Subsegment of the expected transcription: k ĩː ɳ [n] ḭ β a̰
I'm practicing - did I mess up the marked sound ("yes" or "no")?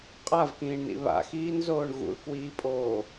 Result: no